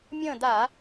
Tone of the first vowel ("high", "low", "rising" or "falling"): falling